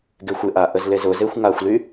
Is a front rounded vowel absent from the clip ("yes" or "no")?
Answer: no